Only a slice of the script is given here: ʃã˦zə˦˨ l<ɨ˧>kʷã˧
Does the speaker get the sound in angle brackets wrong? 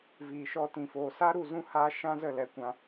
yes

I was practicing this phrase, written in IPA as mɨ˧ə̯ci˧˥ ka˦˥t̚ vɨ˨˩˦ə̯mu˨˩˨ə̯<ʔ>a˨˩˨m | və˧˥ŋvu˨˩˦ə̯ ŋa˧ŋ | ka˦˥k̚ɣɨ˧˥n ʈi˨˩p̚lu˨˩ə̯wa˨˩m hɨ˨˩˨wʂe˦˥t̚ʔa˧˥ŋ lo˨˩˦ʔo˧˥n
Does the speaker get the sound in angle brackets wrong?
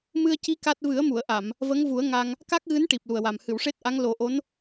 no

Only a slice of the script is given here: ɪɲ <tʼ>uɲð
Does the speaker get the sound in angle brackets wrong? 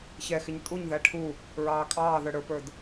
no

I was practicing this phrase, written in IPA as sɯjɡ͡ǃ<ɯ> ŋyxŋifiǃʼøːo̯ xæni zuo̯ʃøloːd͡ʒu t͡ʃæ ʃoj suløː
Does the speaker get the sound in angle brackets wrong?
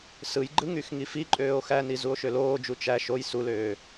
no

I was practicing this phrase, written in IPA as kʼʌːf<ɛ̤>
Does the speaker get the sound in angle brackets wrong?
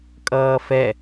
yes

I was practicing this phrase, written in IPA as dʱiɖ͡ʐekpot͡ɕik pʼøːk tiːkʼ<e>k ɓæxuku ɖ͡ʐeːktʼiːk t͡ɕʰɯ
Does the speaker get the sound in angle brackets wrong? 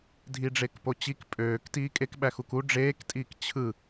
no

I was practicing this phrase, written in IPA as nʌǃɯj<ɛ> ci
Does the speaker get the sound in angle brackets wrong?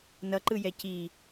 no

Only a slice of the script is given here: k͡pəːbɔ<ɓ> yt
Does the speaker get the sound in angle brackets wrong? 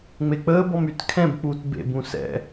yes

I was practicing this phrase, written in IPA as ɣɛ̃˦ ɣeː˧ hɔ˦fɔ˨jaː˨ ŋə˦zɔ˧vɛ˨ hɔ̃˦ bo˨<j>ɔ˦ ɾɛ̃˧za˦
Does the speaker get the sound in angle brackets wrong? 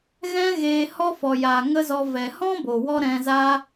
yes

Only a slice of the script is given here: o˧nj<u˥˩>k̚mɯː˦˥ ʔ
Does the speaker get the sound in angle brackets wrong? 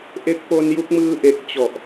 yes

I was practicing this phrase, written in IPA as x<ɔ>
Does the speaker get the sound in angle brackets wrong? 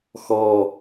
no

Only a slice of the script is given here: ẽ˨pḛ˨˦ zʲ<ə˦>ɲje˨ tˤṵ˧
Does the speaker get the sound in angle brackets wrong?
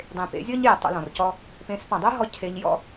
yes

